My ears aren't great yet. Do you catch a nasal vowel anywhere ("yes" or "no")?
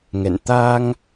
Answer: no